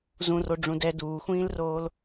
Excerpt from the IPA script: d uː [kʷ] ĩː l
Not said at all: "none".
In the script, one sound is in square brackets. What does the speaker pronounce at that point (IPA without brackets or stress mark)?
xʷ